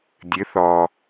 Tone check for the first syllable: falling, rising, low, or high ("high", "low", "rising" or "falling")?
rising